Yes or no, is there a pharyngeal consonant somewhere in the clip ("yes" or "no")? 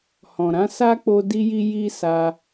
no